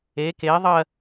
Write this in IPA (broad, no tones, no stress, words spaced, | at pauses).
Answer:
e ke ðˤɜ